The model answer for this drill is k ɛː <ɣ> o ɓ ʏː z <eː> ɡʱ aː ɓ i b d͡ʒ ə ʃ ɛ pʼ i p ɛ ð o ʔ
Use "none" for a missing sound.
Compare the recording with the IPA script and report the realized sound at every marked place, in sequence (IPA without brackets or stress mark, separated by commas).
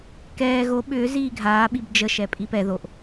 ɣ, iː